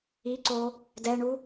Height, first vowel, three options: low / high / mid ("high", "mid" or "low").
high